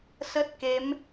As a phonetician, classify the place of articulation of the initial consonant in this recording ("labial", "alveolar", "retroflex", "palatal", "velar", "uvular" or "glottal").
alveolar